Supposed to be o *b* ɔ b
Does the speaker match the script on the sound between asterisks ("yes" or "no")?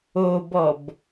yes